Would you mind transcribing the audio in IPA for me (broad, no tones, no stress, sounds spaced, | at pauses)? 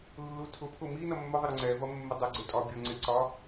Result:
lː u tʰ ʊ pʰ ʊ m i n ʌ mː ʊ ðˤ ɪ ɾ ʊ ŋ͡ǀ ɛ v ʌ mː ɪ dˤ ʊ ɡ͡ǀ ɪ tʼ ɒ bʲ ʌ ŋ͡ǀ ɪ ǀ ɒ